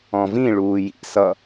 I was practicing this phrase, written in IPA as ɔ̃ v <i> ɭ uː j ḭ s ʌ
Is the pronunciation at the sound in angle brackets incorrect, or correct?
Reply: incorrect